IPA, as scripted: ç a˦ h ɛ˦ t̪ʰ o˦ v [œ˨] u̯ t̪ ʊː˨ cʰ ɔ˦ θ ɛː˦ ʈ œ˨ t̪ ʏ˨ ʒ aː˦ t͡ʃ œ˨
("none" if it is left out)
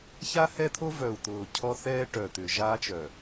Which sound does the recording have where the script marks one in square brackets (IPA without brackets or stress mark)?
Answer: œ˨